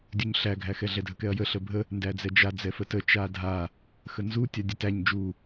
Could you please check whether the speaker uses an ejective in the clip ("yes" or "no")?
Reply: no